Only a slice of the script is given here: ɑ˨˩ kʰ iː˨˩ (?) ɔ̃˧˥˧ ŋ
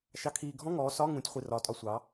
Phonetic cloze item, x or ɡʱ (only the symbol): ɡʱ